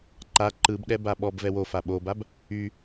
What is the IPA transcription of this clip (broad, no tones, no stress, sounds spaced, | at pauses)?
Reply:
ǃ a ǃ ɯ b ɗ ɛ b a ɓ ɔ b v ɛ w o f a ɓ o b a b | y